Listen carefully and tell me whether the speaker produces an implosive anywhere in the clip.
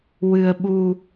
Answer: yes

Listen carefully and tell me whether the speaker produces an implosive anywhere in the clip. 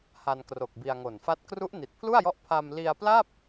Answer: no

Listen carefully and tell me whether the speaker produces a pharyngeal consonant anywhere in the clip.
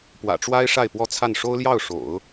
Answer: no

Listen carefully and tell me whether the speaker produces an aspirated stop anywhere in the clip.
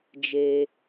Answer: no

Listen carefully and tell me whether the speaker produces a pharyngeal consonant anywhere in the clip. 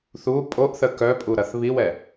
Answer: no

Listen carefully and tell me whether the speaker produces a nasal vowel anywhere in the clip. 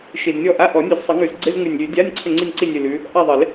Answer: no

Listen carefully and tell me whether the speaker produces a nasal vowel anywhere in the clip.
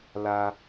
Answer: no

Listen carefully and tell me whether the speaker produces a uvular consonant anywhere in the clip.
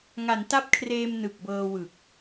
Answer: no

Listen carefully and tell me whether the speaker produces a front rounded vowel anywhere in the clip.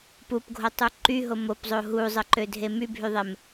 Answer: yes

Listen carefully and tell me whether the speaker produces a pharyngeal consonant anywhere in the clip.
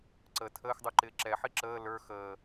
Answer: yes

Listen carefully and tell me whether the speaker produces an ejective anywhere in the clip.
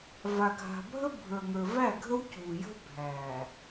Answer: no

